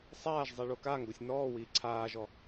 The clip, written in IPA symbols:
sˤaːʒ zˤiɭokaŋɡosʲ nɔːwiː ǀʰaːʒɔ

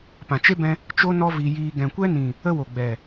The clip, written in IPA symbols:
pã˨t͡ʃe˦bɛ̃˧ | t͡ʃo˦nɔ˦ vi˧jiː˧ ɡɛ̃˨kʷɛ˦nĩ˨ | ə˦ wo˨ɡ͡bɛ˨

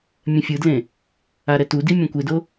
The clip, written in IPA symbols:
mʲɛ̃fʲɯdlẽ | aɾɛtudi mʲɛ̃kʷedo

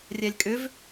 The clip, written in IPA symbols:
rʲɛlʲkʼʏv

